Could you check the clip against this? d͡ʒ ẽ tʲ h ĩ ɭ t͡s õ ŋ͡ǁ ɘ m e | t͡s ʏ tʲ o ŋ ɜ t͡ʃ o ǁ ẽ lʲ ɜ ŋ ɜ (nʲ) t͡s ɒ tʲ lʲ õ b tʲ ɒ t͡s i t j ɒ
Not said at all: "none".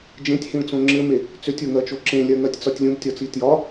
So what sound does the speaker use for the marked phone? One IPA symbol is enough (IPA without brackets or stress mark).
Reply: tʲ